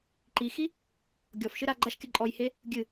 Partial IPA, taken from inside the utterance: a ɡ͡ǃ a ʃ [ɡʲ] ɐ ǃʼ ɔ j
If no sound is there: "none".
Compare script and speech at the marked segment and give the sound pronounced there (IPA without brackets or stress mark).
kʲ